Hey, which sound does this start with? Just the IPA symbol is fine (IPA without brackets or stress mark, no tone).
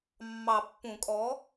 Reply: mː